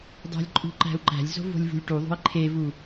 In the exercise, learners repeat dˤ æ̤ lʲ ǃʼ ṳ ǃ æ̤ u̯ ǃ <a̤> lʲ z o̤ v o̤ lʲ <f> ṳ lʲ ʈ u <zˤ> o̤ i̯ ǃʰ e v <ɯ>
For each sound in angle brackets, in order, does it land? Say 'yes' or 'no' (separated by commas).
no, no, no, no